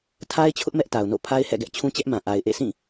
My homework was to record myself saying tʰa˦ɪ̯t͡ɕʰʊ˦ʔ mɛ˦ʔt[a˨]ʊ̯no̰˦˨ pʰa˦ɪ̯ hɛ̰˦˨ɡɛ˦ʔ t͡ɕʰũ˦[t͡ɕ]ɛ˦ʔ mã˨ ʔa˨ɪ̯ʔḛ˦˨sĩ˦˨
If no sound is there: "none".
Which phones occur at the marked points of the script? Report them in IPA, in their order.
a˨, t͡ɕ

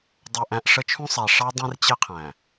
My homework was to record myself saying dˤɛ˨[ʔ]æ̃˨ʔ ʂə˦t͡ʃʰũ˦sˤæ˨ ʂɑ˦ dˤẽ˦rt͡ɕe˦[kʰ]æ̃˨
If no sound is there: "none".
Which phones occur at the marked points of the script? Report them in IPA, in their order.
ʔ, qʰ

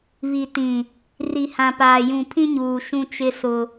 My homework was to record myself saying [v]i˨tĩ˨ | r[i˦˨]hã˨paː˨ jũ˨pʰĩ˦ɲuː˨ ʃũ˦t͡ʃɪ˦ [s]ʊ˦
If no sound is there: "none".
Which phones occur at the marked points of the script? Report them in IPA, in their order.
β, i˨, s

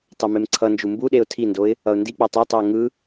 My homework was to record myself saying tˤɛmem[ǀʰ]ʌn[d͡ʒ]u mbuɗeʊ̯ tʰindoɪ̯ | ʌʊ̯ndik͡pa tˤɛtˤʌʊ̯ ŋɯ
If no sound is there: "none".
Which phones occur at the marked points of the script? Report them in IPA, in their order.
ǀʰ, d͡ʒ

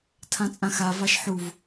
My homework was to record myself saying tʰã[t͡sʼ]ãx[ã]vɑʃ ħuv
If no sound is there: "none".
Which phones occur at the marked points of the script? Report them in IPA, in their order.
t͡sʼ, a

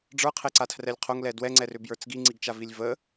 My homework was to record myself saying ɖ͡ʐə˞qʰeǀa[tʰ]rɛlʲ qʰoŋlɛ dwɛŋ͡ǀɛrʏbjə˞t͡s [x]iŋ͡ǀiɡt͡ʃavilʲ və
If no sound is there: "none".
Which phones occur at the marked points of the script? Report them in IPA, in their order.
tʰ, ɡ

